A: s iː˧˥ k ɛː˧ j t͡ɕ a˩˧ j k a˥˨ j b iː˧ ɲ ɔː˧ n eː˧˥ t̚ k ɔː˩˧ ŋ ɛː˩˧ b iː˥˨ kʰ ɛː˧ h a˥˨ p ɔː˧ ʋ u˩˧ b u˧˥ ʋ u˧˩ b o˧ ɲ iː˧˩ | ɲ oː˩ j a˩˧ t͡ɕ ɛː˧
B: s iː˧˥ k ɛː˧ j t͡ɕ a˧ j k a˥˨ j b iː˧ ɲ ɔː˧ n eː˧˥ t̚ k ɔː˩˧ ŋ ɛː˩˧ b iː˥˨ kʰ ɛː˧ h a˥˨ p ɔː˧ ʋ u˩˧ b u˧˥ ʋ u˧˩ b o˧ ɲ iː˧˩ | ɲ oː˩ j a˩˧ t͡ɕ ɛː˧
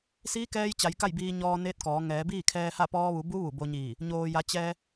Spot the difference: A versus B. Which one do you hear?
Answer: A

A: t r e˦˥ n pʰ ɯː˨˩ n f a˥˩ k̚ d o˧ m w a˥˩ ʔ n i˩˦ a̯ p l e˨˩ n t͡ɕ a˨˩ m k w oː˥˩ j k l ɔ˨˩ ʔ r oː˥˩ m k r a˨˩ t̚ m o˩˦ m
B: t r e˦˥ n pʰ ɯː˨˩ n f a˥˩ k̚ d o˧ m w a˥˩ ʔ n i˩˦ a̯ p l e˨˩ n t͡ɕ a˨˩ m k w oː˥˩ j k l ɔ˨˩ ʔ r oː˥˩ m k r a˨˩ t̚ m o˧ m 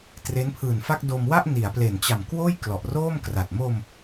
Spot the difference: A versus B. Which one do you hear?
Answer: B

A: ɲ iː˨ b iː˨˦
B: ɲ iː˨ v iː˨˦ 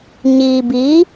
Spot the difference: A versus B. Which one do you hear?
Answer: A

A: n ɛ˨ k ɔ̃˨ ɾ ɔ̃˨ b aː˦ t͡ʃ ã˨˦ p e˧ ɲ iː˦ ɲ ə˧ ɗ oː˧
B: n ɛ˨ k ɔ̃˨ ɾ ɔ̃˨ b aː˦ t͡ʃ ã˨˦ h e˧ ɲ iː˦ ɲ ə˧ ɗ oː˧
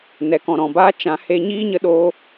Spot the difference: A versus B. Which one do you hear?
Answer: B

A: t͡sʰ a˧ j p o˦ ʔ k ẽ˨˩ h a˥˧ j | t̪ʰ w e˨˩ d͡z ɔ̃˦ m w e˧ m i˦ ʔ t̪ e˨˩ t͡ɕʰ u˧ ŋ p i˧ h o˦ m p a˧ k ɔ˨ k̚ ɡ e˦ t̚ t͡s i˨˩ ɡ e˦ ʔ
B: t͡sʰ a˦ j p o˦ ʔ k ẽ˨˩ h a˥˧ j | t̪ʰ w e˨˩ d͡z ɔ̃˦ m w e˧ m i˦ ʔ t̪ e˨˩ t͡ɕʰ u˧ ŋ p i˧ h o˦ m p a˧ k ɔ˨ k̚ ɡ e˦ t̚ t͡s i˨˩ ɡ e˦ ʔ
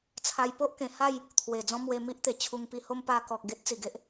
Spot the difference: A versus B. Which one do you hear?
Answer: A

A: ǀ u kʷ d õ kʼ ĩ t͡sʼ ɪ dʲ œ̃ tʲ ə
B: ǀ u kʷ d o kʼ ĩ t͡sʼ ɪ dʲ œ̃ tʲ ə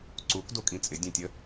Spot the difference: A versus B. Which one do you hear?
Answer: B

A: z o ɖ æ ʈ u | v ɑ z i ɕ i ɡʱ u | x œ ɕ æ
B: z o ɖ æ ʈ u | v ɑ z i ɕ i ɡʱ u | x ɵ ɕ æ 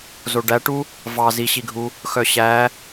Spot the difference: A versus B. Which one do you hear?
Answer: A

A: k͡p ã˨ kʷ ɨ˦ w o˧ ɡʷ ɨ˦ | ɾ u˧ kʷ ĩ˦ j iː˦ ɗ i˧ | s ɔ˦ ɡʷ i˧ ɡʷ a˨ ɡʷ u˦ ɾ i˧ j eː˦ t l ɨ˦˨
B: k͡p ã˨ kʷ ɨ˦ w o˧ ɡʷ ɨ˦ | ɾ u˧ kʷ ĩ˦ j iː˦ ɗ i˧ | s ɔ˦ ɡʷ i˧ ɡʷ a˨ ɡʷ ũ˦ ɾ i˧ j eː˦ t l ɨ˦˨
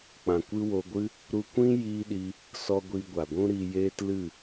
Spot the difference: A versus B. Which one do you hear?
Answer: B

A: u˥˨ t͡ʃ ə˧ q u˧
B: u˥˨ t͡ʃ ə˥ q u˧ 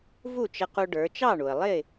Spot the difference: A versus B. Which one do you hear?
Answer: A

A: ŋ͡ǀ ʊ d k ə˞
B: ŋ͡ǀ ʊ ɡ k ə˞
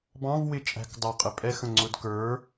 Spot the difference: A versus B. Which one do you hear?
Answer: A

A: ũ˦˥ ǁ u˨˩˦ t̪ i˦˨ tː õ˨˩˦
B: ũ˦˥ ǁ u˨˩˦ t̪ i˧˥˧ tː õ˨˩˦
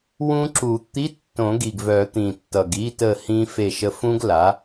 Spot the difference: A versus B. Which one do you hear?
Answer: B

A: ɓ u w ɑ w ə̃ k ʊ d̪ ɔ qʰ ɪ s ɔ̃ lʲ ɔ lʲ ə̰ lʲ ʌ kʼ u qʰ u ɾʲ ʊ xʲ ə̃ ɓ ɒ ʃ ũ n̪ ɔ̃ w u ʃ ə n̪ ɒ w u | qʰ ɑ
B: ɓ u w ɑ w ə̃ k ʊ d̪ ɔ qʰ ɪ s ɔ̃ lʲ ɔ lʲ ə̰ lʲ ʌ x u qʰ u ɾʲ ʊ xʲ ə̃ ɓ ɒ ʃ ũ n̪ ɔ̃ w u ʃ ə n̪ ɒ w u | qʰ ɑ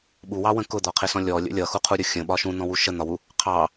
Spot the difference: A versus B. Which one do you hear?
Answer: B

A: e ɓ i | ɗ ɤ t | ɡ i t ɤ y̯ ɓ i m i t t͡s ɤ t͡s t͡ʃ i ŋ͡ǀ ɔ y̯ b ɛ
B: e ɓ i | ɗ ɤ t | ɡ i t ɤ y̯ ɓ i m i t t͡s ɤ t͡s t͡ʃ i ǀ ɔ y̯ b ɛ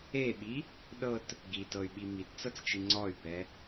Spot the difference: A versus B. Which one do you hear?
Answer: A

